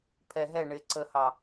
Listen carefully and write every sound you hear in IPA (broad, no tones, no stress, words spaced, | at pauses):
pʰɛ ɦɛ ɳɪ ǀəhɑ